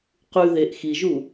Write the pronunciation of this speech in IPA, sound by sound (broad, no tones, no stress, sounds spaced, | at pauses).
q ʉ ð e ʔ x i ʒ u